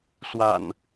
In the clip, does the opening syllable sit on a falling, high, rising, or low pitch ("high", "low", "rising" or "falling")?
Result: low